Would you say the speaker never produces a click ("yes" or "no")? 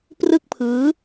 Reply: yes